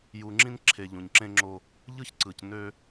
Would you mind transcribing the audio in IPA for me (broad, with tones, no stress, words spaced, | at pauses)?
ju˨ŋ͡ǁĩ˦nǁʰe˨ ʎũ˨ɲ ǁẽ˦ŋ͡ǁo˦ | ʎɯ˦çǀɯ˨c nø˦